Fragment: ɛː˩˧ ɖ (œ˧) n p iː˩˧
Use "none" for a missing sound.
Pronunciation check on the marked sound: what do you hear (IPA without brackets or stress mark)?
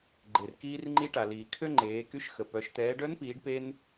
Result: œ˧˥